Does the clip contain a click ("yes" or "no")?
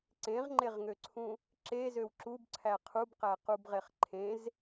yes